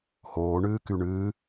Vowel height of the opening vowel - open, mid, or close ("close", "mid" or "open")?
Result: mid